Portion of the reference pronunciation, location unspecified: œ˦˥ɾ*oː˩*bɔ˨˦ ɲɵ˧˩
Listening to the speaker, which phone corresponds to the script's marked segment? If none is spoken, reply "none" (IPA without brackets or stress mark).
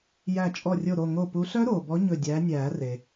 oː˩